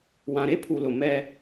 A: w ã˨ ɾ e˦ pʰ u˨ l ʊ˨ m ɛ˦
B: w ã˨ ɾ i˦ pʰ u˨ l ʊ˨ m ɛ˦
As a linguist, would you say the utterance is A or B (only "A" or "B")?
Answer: A